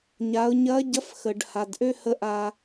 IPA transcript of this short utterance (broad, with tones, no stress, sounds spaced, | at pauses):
ɲ a˩˧ ʊ̯ ɲ ɐ˧˥ ɟ ɐ˧˥ f x ə˩ ɖ h a˩ d ʔ ø˥ h ə˧˥ ʔ a˧